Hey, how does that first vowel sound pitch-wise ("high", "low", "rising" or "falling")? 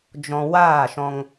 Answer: low